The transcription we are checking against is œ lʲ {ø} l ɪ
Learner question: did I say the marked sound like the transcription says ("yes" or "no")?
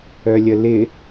no